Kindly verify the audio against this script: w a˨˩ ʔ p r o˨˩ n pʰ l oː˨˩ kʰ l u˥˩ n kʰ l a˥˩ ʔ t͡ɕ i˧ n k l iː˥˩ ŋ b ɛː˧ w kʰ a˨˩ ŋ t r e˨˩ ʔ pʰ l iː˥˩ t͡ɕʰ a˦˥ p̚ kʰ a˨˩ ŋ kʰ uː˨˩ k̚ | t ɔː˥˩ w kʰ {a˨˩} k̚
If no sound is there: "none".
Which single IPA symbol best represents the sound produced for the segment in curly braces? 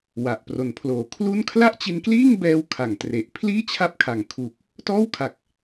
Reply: a˨˩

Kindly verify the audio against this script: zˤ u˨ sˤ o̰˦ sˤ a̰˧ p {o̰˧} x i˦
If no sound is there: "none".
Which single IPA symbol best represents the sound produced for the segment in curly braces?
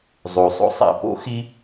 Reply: o̰˦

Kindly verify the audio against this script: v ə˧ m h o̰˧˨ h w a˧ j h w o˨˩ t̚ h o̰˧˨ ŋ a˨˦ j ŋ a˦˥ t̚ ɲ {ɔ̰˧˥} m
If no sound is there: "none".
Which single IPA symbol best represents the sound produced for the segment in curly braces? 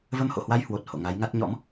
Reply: ɔ̰˧˥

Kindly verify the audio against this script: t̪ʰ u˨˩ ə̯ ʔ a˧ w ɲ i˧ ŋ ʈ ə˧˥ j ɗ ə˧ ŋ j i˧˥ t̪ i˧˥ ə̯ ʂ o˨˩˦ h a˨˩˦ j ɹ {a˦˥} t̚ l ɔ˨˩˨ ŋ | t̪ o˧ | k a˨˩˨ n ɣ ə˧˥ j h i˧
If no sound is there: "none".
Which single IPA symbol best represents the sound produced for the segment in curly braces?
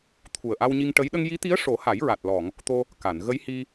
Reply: a˨˩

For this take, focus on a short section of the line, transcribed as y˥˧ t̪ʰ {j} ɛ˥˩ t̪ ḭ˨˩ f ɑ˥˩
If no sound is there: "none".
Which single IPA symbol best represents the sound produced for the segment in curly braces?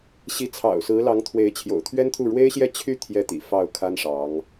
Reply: j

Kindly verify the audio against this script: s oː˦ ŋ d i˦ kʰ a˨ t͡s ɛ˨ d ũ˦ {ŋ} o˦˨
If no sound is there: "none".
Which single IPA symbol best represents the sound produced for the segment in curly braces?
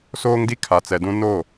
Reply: n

